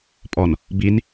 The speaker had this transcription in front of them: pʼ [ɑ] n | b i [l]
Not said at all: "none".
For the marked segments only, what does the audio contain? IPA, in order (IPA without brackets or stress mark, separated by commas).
ɔ, n